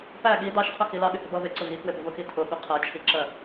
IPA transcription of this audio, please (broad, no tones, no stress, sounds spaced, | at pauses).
p æ ɠ i d ɑ ʃ qʰ ʊ x i l ɑ ɠ ɪ h ɪ b ʌ β ɪ ǀ ʊ ɣ i k w ɪ b ʊ v ʊ x i tʰ ʊ ɠ ʊ qʰ ɜ t͡ʃʰ i ǁ ɜ